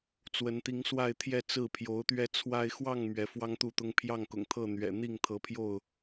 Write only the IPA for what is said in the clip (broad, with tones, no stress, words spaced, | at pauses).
t͡swə˨˦nt̪i˨˦ŋswa˥˨ɪ̯t̪ʰjɛ˥˨ t͡sɹ̩˥˨pʰjo˨˦ʊ̯t̪ɥɛ˦t͡sʰwa˦ɪ̯ xwɑ˥˨ŋ mɥɛ˨˦fwɑ˦ŋt̪u˥˨t̪ʊ˦ŋ pʰjɑ˥˨ŋkʊ̰˨˩ŋt̪ʰɤ˥˨ n̪ɥɛ̰˨˩n̪i˥˨ŋt̪ʰɤ˨˦ pʰjo˥˨ʊ̯